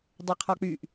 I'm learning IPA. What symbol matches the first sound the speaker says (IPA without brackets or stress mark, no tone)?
dˤ